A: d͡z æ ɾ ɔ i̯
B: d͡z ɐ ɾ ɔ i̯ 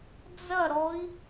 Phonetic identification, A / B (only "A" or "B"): B